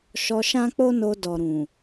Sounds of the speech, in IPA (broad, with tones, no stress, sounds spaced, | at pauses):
ʃ ɔ˧ ʃ ã˦ k͡p o˦ n o˧ d ɔ˨ ɾ ũ˨